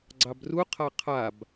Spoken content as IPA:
ɡ͡ǀ ɑ b r u qʰ a qʰ a b

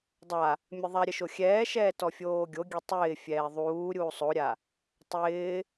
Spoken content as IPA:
dˤ a | mʲ ə ðˤ a ɾʲ ə ʃ o xʲ ɛː ʃ ɛː t ɔ fʲ oː ɡʲ o ɡʲ ɛ tˤ ɪː fʲ ɛː ðˤ uː ɾʲ uː sˤ o ɾʲ a | tˤ ɪː

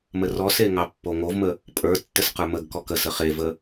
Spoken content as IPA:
m ə r ɔ s e ŋ ɑ pː o ŋ o v m ə | pʼ ə˞ tː ə s q ə˞ m ə ɡ k ɔ k ə s ə χ e v ə

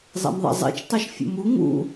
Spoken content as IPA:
zˤ ɛ̰ m ðˤ ɛ̰ zˤ ɛ̰ t͡ʃ tˤ ɛ ʃ fʲ ṵ m u ŋ ṵ

